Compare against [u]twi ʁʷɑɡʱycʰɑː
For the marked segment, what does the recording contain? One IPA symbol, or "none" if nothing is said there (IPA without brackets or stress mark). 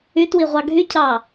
y